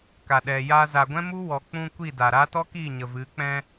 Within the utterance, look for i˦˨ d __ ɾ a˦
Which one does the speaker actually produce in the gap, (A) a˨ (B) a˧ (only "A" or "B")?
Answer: A